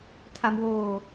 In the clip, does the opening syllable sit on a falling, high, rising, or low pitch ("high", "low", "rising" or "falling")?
low